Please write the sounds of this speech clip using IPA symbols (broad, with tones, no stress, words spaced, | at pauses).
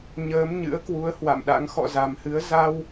ɲəː˨˦mɲɨ̰˧˥ə̯kwu˨˦ə̯ hwa̰˧˨mɗa̰˧˥ŋ xɔ̰˧˨za˨˩mhɨ˨˦ə̯ za˧w